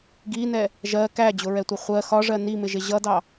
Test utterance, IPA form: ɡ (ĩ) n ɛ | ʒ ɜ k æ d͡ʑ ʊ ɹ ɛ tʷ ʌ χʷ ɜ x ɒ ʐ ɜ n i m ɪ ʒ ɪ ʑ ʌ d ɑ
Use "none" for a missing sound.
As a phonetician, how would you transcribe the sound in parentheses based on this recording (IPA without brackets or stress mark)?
i